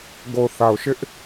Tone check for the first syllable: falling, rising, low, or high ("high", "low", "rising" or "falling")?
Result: low